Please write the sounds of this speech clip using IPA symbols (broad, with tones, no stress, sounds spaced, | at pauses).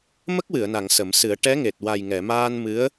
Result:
m ə˦˥ k̚ w ɨ˨˩˨ ə̯ n a˨˩˨ ŋ s ə˨˩˦ m s ɨ˨˩˦ ə̯ ʈ ɛ˧˥ ŋ e˨˩ t̚ w a˨˩ j ŋ ɛ˨˩˨ m aː˧ n m ɨ˧˥ ə̯